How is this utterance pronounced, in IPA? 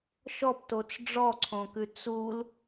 ʃ ɔ p t o t͡s ɖ͡ʐ ɔ ǀʰ õ k ʉ t͡s u l

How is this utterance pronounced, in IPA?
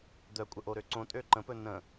d̪ œ kʷʼ ə ʔ o ɾ ø ǀ õ tʼ ø ǃ ə̃ p ɵ n ə̃

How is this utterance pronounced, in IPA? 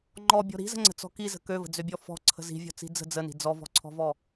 ŋ͡ǃ ɔ bʲ ɔ̤ ɾ i̤ z ə̤ ŋ͡ǀ ə̤ t͡s ɔ̤ k i z ə̤ k ø v ə̤ d͡z ø bʲ ɔ f ɔ̤ ǀʰ ə̤ z i̤ vʲ ɔ̤ t͡s i̤ d͡z ə̤ d͡z ə n i̤ d͡z ɔ v ɔ̤ ǀʰ ɔ̤ v ɔ

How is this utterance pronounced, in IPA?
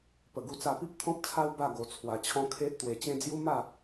p ə˨˩ ɡ u˧ t͡s a˧ p i˦ p̚ t̪ʰ ɔ̃˦ p̚ t͡sʰ a˦ w b a˥˧ ɡ o˧ t͡sʰ w a˧ t͡ɕʰ ɔ̃˦ kʰ e˦ ʔ t̪ w e˧ t͡ɕ ẽ˦ d͡z j u˦ m a˥˧

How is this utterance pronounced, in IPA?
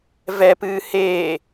v ɛ p ɨː h eː

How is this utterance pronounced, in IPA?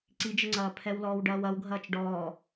ǀ i d͡ʒ ə ŋ͡ǀ ɐː pʰ ɛ w l ɔː w ɖ ɐː w ɐ w ɡʱ ɐː t͡ʃ ɖ ɔː

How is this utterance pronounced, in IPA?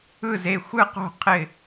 ɯ˥˨ z e˥˨ xʷ ɯ˥˨ q o̤˥˨ qʰ ɪ˥˨

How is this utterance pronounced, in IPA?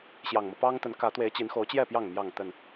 ɕ j ɑ˨˩ ŋ m ɤ˦ p ɑ˦ ŋ t̪ ə˨˦ n k ä˨˦ t̪ w e˨˦ ɪ̯ t͡ɕ i˨˦ n x o˨˦ ʊ̯ t͡ɕ j ɛ˥˨ p j ɑ˥˨ ŋ m j ɑ˥˨ ŋ t̪ ə˥˨ n

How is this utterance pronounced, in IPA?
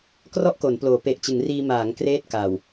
k r ɔ˥˩ ʔ k o˩˦ n p l oː˩˦ p e˨˩ ʔ t͡ɕ ɯ˩˦ ŋ r iː˧ m aː˩˦ ŋ k r eː˥˩ t̚ k a˨˩ w

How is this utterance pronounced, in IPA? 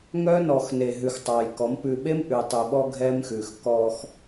ŋ œ˦ n ɔ˨ x n e˨ ɦ ʉ˨ x tˤ ɑ˨ j k ɔ˨˦ m p ʉ˨ ɓ e˦ m ʔ ʉ˨ tˤ ʉ˨ ɓ ɔ˦ ɡʱ ɛ˦ m x ʉ˨ x k ɔ˦ x

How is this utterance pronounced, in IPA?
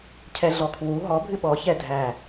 cʰ ɛ ɮ ɔ kʰ w u ɦ ɔ bʱ ɨ ɓ ɔ ç ɛ dʱ æ

